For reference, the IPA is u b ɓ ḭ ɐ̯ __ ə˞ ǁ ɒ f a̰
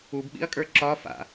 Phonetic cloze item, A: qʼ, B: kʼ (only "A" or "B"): B